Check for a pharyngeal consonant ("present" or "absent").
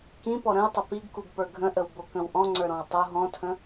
absent